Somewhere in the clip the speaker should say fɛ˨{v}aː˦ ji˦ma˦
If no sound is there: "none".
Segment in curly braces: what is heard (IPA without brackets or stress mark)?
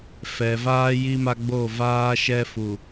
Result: v